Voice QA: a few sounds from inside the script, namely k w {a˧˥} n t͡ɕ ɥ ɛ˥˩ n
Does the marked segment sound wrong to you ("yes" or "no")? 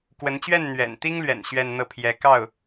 yes